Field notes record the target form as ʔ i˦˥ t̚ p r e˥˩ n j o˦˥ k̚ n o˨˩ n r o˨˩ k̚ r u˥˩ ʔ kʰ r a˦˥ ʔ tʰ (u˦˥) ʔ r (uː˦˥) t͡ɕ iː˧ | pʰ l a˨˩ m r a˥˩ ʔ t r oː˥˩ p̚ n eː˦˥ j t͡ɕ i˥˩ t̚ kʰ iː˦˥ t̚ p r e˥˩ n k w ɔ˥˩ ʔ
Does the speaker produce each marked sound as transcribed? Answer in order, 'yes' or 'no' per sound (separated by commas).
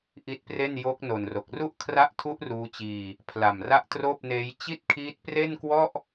yes, yes